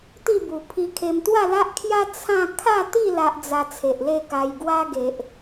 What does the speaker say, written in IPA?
t̪i˥˧bu˨˩pʰi˧kʰe˧m t̪wa˥˧la˦ʔkʰja˦ t͡sʰã˥˧ kʰa˥˧t̪i˥˧ la˦ʔd͡za˧ t͡sʰe˨ʔle˥˧ka˧j ɡwa˦ɡe˨ʔ

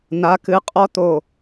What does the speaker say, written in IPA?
na˨˦kɨ˨˦qʼɔ˦ t̪o˧˩

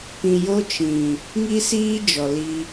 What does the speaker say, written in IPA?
pĩ˨jo˧ t͡ʃĩ˨ | ŋi˦siː˦ d͡ʒɔ˨li˧

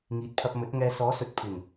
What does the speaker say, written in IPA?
ŋiː˨t̚pʰɐ˧p̚ mɵ˨˥t̚ŋɛː˧ sɔː˨˥sɵ˨˥t̚ pʰɪ˨˩ŋ

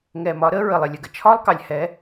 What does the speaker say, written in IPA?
ŋɛ˨mɒ˨˦ ɾə˨˦ ɹə˨lˠɪ˨lʲə˨ɡə˨ t͡ʃʰɒ˦lˠkɑ˨lʲhɛ˨˦

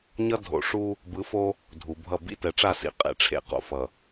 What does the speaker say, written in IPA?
ɲʌ˦ dʱo̰˨ʂu˦ | bɯ˨˦fo˦ | dʱu˨bʱʌ˦˨ bḭ˦ tɛ˨ʈ͡ʂa˦˨ sḭ˨ qʼḛ˨ʈ͡ʂʰḛ˨ qo̰˨ fʌ˨

